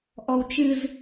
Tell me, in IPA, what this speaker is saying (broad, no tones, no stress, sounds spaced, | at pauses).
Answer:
ʔ ɔ w t͡ʃ ɨ z